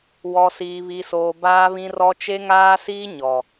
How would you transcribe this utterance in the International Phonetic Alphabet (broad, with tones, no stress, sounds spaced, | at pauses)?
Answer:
w ɔ˨ s iː˨ β i˨ s oː˨ b aː˦ β ĩ˦ r ɔ˦ t͡ʃ e˦ ŋ aː˦ s iː˦ ɲ ɔ˨